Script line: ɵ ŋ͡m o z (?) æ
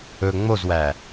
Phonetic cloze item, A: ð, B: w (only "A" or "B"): B